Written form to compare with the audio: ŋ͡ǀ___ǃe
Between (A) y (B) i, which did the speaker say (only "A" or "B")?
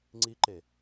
B